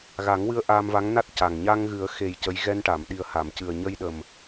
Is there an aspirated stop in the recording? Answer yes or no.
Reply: no